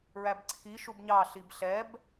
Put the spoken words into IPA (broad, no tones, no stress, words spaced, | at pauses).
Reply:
ɹæbǀʰiʃub ɲɑ ɬibɬɛb